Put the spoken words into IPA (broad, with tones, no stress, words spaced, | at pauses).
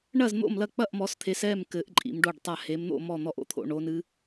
ɳɐ˥˨zn̪o̰˥˨mlɐ˥˨k͡pɐ˥˨ʔ mɔ˨˦st̪ʰe˨˦s ɛ˥˨mkɘ˨˦ʔ ǃʼḭ˨˦mɖo˥˨ɖtˤa˥˨ he˨˦mn̪o̰˥˨ mɔ˥˨n̪ɔ˥˨ʔo̰˨˦t̪ʰo̰˨˦ ɳo˨˦nɨ˨˦